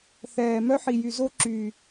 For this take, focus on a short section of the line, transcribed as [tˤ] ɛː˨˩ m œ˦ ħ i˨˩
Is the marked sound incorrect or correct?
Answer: incorrect